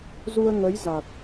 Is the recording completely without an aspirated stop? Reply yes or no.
yes